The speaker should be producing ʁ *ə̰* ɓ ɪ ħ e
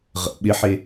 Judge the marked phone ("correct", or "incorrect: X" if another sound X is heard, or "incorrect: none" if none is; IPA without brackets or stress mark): correct